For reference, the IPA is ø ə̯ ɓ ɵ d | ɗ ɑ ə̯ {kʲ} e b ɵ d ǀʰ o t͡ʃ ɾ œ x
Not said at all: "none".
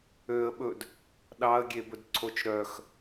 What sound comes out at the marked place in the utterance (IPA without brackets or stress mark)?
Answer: ɡʲ